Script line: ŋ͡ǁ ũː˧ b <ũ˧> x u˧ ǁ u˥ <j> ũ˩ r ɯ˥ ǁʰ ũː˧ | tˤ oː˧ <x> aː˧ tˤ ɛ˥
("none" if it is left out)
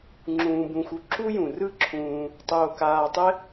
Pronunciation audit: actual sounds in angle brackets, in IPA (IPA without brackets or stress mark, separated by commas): ũ˧, j, k